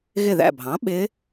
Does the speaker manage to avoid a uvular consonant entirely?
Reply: yes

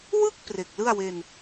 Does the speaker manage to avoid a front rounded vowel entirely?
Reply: yes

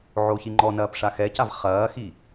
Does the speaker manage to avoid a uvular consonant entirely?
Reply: no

